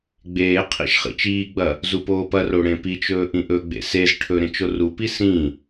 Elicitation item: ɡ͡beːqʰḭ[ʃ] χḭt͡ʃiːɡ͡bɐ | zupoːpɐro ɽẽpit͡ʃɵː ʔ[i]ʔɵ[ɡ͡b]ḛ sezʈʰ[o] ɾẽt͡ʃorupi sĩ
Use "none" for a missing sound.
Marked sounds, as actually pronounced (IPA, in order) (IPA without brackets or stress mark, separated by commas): ʃ, ĩ, ɡ͡b, ɵ